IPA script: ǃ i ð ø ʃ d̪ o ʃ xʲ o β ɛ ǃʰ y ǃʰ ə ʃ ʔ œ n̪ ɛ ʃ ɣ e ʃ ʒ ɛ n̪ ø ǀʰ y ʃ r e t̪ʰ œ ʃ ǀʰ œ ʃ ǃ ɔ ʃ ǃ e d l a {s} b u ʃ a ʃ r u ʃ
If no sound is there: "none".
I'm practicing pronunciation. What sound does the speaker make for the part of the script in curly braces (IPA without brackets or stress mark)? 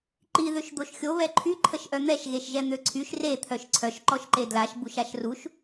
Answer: ʃ